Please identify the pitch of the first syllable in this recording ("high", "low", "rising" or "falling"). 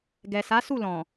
low